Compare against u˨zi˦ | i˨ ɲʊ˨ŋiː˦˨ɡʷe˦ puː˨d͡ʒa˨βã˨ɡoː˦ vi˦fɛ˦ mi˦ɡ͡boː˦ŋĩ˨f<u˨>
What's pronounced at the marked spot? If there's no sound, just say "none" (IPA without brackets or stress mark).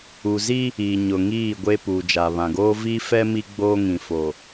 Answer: o˨